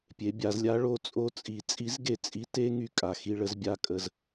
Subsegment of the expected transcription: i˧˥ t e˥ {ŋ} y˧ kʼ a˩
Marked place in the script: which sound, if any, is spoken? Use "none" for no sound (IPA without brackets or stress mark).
ŋ